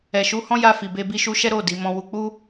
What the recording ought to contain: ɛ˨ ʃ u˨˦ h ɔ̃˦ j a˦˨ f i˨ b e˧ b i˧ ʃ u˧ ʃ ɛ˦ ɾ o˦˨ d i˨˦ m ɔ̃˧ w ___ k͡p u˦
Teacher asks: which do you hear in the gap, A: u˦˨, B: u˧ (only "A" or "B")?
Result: B